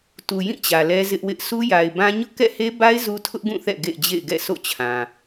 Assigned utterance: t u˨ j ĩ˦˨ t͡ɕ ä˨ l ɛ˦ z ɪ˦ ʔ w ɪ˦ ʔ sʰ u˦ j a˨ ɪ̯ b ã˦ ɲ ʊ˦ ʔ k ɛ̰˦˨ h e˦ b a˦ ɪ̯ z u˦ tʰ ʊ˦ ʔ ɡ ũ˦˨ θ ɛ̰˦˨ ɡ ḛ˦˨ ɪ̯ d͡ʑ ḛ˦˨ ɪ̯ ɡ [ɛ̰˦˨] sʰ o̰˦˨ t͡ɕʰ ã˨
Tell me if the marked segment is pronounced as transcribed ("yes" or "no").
yes